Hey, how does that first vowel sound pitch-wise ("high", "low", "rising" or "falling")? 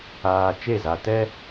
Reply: low